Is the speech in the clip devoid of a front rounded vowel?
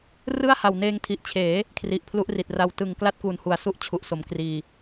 yes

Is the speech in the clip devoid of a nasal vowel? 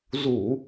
yes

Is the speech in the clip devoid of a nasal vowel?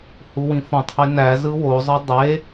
no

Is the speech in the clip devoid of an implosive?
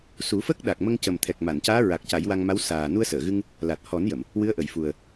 no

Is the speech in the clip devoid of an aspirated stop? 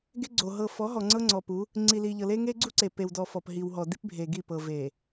yes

